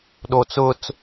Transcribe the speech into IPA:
ɗot͡sʊt͡s

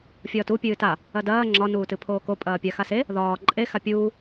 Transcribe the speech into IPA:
fʲɒːtu pʲɨːta | ɐdɐː ŋ͡ǁɒ nuːtɨpʰoːko pʼɐːpʲaxase | ðɒː ǃʼe xapʲuː

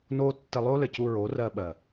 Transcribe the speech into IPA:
no˦ tːɘ˧lˠo˦lɘ˨cu˧ ɹo˨˦rɜ˧ɓɜ˨

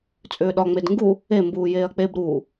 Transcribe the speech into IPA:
t͡sʼʏːɗɒŋ͡med ŋɡu | e mbuːjeːɐ̯k͡peb ɾuː

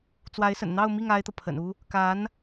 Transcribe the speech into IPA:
t͡swa˧˥ɪ̯sə̰˨˩nn̪ɑ˥˧ʊ̯mi˥˩ŋ a˥ɪ̯t̪ɤ˨pʰə̰˨˩nu˥ | ka˧˥n

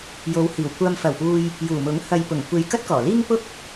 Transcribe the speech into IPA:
jo˨˧whiː˨˩w kʷɐ˨mfɐ˨˩wpuː˨j | juː˨˩mʊ˨˥ŋ hɐ˨jpʊ˨˩ŋkʷe˨j kɐ˥t̚kɔː˨˩liː˥ŋ pʊ˥k̚

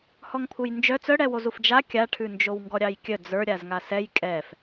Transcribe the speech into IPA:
hɔŋpʰujnd͡ʒœ t͡sœɽɛwozuf d͡ʒa kʲaʈʰʉnd͡ʒow ŋɡɔɾʲɑjkʲœ d͡zə˞ ɾʲazŋasɛj kʼɛf

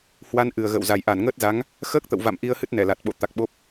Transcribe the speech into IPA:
hwa˧n ʔɨ˨˩ə̯ɣə̰ː˧˨wza˨˩j ʔa˧˩nŋəː˦˥t̚za˨˦ŋ | xəː˦˥k̚t̪ə̰˧˨wva̰˧˨m ʔi˧ə̯hɨ˦˥t̚ nɛ˧˩la˨˩t̚ɓo̰˧˨ t̪a˨˩k̚ ɓo˦˥p̚

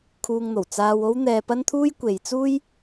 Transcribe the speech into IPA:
kʰuː˧ŋn̪o˨˩w t͡saː˧wo˥w n̪ɛː˧pɐ˥nt̪ʰuː˥j kʷe˨˧jt͡suː˥j

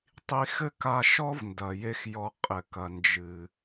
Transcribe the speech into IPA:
tˤi˧xɘ˦ka˧ʃɔ˦v ndɐ˨je˦xjɔ˧qʼɘ˨ kɐ˨nd͡ʒɨ˨

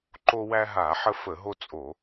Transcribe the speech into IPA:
ǃo˦wæ˦ɦa˧˩˧ħə˦ fə˧˩˧ɦo˦t͡sʼo˧˩˧

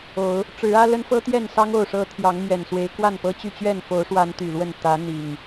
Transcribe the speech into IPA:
o˨˦ʊ̯ | ʈ͡ʂɻ̩˨˦ä˦lə˦nfɤ˦ t̪jɛ˥˨nsɑ˦ŋ o˥˨ʊ̯ʂɤ˦ t̪ʰjɑ˨˦ŋmɥɛ˨˩nswe˨˦ɪ̯ kwa˥˨npɤ˦t͡ɕy˥˨ t͡ɕɥɛ˥˨nfo˨˦ʊ̯ʂwa˨˦n t̪y˨˩lwə˥˨n t̪ä˨˦n̪i˨˩ŋ

